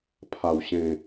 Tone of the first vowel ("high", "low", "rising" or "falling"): low